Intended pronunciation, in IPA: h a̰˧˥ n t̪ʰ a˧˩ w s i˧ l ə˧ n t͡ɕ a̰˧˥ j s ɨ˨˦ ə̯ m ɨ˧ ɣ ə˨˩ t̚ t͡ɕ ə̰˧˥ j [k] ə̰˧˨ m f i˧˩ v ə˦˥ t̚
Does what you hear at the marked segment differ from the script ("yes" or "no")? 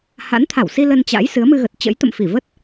yes